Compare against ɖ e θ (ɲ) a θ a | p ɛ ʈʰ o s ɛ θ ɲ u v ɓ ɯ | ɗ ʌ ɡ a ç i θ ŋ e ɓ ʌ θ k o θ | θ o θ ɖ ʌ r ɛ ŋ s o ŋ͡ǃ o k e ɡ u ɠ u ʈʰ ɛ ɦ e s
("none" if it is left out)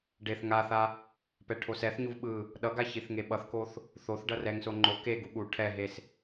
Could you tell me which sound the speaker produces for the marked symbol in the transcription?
ŋ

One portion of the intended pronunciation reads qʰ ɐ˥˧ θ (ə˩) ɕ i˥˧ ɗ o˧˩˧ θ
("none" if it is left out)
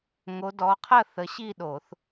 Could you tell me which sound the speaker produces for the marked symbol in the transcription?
ə˨˦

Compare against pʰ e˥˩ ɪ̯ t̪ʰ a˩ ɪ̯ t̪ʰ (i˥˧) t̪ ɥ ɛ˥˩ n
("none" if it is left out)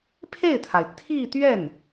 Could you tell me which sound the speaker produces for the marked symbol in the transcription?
i˥˧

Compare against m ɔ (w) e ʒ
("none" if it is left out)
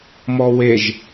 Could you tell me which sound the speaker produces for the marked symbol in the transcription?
w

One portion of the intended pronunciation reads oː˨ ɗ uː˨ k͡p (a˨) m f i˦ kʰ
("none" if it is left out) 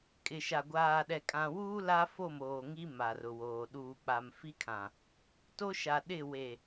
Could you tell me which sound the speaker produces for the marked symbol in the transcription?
a˨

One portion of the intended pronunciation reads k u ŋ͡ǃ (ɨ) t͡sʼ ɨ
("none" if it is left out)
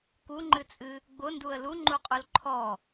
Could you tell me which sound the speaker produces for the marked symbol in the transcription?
ɨ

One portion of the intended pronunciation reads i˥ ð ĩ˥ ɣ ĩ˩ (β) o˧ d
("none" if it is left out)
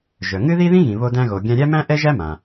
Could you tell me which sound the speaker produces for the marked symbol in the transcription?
β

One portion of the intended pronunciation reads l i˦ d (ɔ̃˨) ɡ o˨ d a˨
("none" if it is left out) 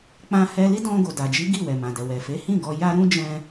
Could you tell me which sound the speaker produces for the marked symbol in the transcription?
ɔ̃˧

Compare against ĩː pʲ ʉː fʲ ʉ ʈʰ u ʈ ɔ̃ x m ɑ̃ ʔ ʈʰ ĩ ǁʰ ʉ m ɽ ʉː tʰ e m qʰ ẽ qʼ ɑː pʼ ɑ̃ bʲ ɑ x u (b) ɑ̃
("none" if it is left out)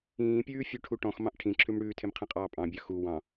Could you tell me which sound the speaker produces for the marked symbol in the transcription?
w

